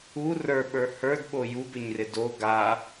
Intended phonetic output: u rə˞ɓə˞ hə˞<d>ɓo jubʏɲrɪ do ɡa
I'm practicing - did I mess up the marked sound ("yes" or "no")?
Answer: no